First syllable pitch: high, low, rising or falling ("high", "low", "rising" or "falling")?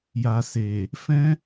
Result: low